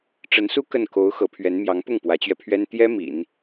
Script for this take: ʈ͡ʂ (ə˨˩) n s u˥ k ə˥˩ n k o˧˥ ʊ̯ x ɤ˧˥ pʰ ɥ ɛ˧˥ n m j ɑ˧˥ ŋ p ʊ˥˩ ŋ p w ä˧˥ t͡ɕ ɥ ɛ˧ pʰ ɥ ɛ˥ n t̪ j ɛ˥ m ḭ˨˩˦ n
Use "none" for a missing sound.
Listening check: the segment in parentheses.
ə˧˥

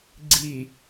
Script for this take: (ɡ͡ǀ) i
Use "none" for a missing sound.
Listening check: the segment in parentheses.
ɡ͡ǀ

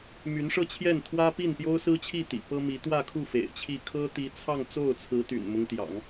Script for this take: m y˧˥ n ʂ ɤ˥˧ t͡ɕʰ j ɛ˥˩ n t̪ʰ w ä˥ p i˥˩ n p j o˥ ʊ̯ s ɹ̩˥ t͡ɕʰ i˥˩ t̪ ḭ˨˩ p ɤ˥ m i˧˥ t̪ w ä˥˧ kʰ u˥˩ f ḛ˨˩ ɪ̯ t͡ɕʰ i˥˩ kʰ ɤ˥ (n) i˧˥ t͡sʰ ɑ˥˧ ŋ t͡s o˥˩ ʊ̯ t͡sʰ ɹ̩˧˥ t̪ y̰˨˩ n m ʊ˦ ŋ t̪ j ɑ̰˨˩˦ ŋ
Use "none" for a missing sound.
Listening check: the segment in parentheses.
t̪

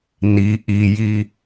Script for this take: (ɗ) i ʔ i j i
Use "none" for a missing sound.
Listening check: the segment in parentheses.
n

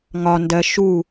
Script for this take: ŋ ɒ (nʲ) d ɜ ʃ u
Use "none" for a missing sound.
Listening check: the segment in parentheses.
n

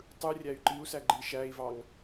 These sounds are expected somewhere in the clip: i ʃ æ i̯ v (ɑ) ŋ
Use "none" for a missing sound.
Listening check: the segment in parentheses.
ɑ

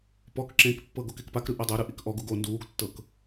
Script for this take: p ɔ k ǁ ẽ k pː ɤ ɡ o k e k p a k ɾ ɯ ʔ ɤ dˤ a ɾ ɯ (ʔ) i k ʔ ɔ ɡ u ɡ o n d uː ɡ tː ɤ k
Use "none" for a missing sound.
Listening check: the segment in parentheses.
ʔ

